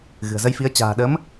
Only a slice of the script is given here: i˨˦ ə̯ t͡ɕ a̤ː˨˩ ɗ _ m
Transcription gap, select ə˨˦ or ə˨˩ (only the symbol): ə˨˦